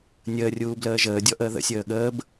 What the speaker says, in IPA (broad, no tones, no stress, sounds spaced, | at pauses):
nʲ əː rʲ uː b l əː ʒ əː dʲ ɔ ʔ əː ð ə̰ sʲ əː ɠ əː b